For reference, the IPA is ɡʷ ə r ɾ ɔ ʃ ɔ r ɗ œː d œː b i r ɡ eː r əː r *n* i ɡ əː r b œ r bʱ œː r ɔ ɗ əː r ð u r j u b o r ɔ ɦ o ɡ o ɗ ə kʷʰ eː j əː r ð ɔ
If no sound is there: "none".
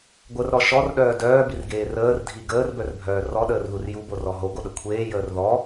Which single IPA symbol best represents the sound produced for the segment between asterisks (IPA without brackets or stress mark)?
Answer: dʱ